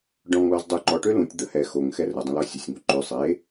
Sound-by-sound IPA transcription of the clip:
ɖ ɔ̃ ŋ l ɔ z dˤ ø ǃ ɔ ʈ ø l ũ tʲ d̪ ə h ɛ x o ŋ x ɛ r ə dˤ ə̃ l ɔ sʲ ə sʲ ŋ o ǃ ø sˤ e

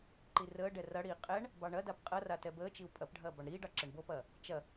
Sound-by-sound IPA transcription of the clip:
ǃ i r əː ɖ ɛ r ɐ ɽ iː qʼ ɛ ɳ | b ɑ ɳ ɐ d a p qʼ ɐ r a t ɛ b əː t͡ʃ i u̯ pʼ ɐ p ɖʱ ɐː b ɑ ɳ ɾ iː ɖ ɑ ǁ ɛ ɳ b o p ɐː | t͡ʃ ɐ

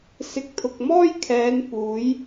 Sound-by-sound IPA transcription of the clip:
s ɪ˨ k̚ t̪ʰ ʊ˨ k̚ m ɔː˥ j kʰ ɛː˨˧ n p uː˨˥ j

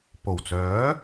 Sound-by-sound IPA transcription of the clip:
p o˨˩ w t͡s œː˨˥

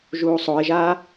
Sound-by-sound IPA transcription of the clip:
ʒ uː sˤ o ɪ̯ ʒ aː

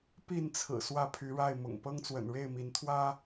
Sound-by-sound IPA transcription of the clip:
p i˥˨ n t͡sʰ ɹ̩˨˩ s w ä˦ pʰ y˨˦ ɻ a˥˨ ɪ̯ m ʊ̰˨˩ ŋ p ɤ˦ ŋ t͡s w ə̰˨˩ n ɻ e˥˨ ɪ̯ m i˨˦ n t̪ʰ w ä˦

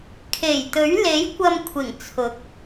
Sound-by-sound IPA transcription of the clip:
kʰ e˨˩ j t̪ ɵ˨˥ ɥ l e˨˥ j kʷ ɐ˧ m kʷʰ ɪ˨˩ ŋ t͡sʰ ʊ˨˥ k̚

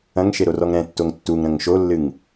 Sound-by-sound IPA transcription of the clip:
ɐ̃ ŋ ʃ e ɾ o r ɔ ŋ ɾ ɛ̃ tː o ŋ tː u ŋ ɾ ɐ̃ ŋ ʃ o lː ɨ ŋ

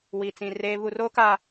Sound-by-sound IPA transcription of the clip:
w i˨ t͡s ĩ˨ r eː˦ β u˨ r oː˦ k a˨

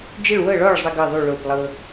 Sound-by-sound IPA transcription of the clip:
d͡ʒ ɪ˥˨ ɭ w ɤ˥˨ ɭ ɔ˥˨ ɭ zˤ ə˥ ɡ ɤ˥˨ ðˤ y˥˨ ɭ o˥˨ p lˠ ɤ˥

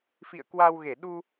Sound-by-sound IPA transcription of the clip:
f ḭ˧˨ ə̯ k w a˧ w ɣ e˧˩ ɗ u˧

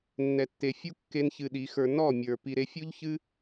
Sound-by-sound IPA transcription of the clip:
nː ɛ˨ tː e˨ fʲ u˦ kː e˦ n ç ɨ˧ ɗ i˨˦ x ə˞˧ n ɔ˦˨ mʲ ə˞˨ p i˨ ɾ e˧ fʲ u˦ ʎ ç ɨ˦

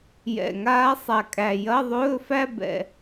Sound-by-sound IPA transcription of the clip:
j ɛ̰˨˩ ŋ aː˧˥ sˤ a˨˩ kʼ æ˨˩ j ɐ˧˥˧ ðˤ ɵː˧˥˧ f æ˥˧ b ɛ̰˨˩

